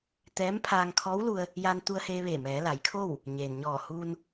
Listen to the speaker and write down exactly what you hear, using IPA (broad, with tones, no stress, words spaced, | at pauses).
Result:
t̪ɛː˧˥mpʰaː˧ŋ kʰɔː˧˥wlu˧ə̯ | jaː˧nt̪u˧ə̯heː˧ʋeː˧˩ mɛː˩˧la˩˧jkʰo˥˨w | ɲeː˩nɲɔː˧˩huː˧n